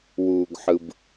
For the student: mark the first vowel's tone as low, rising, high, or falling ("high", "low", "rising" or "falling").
low